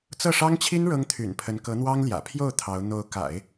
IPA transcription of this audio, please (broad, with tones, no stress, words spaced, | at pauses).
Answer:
t͡sɤ˥˩ʂɑ˥ŋt͡ɕʰi˥n ɻɤ˥ŋt̪ʰy̰˨˩npʰə˧˥n kɤ˧˥n̪wɑ˥ŋljä̰˨˩ pʰjo˥˩ʊ̯ t̪ʰɑ˧˥ʊ̯ n̪o˧˥ʊ̯ka̰˨˩˦ɪ̯